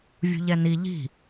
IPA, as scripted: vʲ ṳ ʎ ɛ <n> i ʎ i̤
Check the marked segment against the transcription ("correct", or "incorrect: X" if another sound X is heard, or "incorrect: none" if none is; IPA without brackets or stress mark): correct